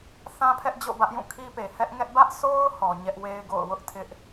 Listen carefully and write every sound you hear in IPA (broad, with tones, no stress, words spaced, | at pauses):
θã˦pʰɛ˦ʔ d͡ʑo̰˦˨bä˦ʔ jũ˦˨kʰi˦pe˨ hɛ˦ʔŋɛ˦ʔ bä˦ʔsʰo˦ʊ̯ hɔ˨ɲɛ˦ʔ we˦ɪ̯ɡo̰˦˨ʊ̯ wʊ˦ʔ tʰɪ˦ʔ